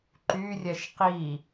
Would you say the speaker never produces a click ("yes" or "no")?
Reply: no